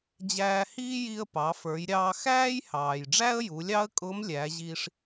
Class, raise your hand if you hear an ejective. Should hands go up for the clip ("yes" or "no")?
yes